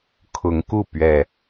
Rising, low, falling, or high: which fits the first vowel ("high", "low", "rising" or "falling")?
rising